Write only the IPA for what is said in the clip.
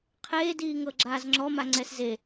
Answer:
qʰeːdiːŋɤ ɡ͡ǁaːzŋ͡ǁɔma ŋ͡ǀɛsze

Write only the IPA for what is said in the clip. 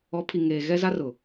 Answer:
ɔ˨˦pʰi˨ ŋeː˨ ɣɛ˦za˦rʊ˨

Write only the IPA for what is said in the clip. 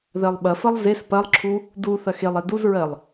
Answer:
ðɜlˠɓɐfɐlˠ zes pɐlˠǁʰu | du θɐxelˠɛ duzɹɜlˠ

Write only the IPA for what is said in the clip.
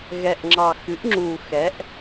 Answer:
ɣɛ˨˩ʔŋ͡ǁɑ˨˩xɨ˩˥ʔŋ͡ǁu˨˩ xɛ˩˥ʔ

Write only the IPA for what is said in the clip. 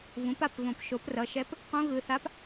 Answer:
vũ˩˥pa˩˧˩pvõ˨˩˦p ʃo˩˥prʌ˩˧˩ʃɛ˧˥p | qũ˧˥ ɣɯ˩˧˩θa˧˥p

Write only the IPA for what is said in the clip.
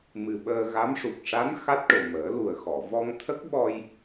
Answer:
mɨ˨˩ɓəː˧ ɣa˧˥mʂu˨˩k̚ ʂa˧˥n xa˦˥t̚ʈo˨˩ məː˨˩˦lu˨˩ə̯xɔ˨˩˨ vɔ˧ŋt̪ʰə˦˥k̚ɓɔ˧j

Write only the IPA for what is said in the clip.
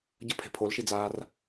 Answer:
ɟəpʰe̤ pʰolʃid͡zaːr

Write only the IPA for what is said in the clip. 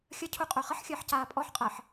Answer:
xʲəcʰuqʼø χəħxʲəːħcaː pʼɔħqʼəːħ

